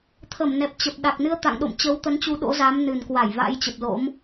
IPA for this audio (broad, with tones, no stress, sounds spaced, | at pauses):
t̪ʰ ə˧˩ m n ɛ˨˩ p̚ t͡ɕ ə˨˩ p̚ ɗ a˨˩ k̚ n ɨ˧ ə̯ t̪ a̰˧˨ ŋ ɗ o̰˧˨ m t͡ɕ ə˨˦ w t̪ ə˨˦ n t͡ɕ u˨˦ ɗ o̰˧˥ z a˨˦ m n ɨ˨˩ n k w a˧˩ j v a̰˧˥ j t͡ɕ ə˨˩ p̚ l o̰˧˥ m